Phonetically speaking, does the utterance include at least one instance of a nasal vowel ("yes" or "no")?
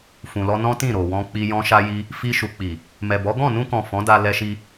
yes